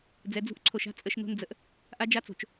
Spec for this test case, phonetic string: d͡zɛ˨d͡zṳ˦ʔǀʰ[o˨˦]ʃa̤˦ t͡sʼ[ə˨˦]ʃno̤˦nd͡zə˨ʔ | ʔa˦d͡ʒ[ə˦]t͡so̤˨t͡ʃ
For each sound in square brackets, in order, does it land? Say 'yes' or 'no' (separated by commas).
no, yes, no